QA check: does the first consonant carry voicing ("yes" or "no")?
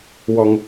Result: yes